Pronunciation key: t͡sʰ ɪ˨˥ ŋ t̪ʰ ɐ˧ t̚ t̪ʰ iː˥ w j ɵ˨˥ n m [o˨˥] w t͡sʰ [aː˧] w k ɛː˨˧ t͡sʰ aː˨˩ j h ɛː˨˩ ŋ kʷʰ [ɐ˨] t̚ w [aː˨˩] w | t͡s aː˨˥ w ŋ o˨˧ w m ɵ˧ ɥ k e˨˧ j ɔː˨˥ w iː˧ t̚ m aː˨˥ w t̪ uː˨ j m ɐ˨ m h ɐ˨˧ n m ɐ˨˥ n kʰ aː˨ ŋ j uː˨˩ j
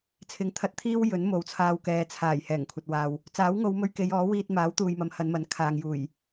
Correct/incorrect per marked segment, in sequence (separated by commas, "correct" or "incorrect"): correct, correct, correct, incorrect